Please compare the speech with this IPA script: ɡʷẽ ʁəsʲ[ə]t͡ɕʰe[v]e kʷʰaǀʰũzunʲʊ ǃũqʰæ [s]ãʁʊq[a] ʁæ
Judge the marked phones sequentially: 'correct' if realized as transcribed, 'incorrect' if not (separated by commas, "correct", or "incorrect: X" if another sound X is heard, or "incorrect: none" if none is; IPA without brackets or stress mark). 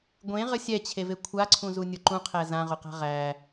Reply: incorrect: ɛ, correct, incorrect: z, incorrect: a̤